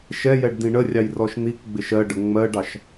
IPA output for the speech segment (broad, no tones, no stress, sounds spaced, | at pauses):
ʃ ɛ j ɛ ɖ d ĩ ɳ ə rʲ ɑ j r ɔ ʃ n̪ i k ɡ͡b ɪ ʃ ɜ ɖ ə ŋ͡m ɜ ɖ ɑ ʃ